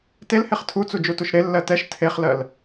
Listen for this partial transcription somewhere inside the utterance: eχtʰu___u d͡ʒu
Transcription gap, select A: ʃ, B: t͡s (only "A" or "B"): B